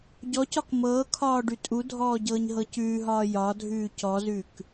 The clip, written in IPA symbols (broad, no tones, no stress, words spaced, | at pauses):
ɟɔcɒk mɤːkʰɒː ɖʉtʼudʱɔː ɟɤːɲɦɤcʉːɦɒː jɒː dʱʉːcɔzʉk